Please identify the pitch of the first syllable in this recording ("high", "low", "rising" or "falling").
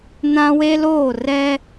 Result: high